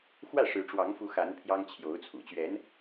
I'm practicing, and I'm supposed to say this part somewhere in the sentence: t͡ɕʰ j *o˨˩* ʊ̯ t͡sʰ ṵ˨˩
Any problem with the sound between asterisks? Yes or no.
yes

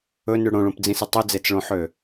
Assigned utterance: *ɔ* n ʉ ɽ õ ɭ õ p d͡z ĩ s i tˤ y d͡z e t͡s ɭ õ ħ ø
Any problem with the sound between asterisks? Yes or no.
yes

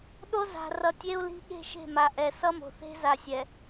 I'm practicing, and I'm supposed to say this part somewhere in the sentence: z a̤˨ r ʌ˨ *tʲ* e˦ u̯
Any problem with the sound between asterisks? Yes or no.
no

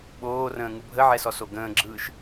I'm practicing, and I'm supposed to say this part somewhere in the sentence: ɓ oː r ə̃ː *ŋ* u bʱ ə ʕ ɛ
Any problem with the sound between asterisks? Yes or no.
no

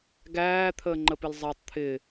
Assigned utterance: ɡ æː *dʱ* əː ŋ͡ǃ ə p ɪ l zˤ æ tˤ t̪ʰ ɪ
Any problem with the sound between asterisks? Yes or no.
yes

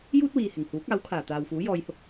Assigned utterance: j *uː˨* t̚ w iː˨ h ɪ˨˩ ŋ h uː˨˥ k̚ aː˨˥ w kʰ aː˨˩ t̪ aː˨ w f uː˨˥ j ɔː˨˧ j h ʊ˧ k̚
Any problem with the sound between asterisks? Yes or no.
yes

